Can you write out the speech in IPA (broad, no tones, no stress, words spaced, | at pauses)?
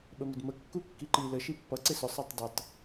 ɓəmɪdmə kːukːiǃi lə ʃipːʌ ǀɪsʊ sˤɑtˤdʌtˤ